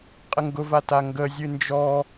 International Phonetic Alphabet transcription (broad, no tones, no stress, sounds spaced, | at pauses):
qʼ ə ŋ ɡ ʊ v a t a ŋ ɡ ə zʲ ɨ n d͡ʒ ɔ